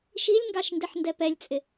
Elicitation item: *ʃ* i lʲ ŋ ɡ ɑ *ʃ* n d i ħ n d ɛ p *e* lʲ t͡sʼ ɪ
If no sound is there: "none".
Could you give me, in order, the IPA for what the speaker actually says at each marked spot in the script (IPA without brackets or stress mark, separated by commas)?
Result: ʃ, ʃ, ɛ